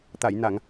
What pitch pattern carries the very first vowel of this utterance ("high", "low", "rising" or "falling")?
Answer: low